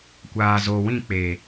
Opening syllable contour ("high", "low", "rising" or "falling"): low